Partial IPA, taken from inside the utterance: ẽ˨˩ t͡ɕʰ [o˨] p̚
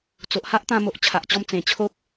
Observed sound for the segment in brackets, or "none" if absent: o˦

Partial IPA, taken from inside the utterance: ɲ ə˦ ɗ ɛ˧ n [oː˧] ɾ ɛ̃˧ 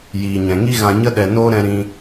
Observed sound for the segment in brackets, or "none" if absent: oː˦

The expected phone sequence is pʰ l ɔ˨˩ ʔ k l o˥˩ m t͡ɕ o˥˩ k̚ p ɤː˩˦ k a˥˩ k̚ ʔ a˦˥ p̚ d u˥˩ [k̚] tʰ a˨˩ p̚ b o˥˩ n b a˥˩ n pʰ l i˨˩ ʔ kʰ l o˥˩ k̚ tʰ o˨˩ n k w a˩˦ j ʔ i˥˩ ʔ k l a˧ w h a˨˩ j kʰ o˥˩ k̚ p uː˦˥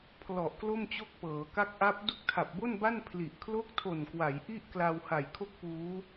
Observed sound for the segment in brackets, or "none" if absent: k̚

